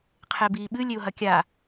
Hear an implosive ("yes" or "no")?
yes